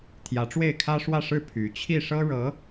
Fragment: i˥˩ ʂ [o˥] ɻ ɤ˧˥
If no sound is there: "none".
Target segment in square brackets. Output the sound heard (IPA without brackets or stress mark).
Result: ɤ˥